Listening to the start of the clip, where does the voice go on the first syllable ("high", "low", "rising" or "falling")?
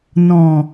low